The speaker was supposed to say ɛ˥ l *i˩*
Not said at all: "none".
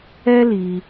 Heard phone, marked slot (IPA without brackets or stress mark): i˩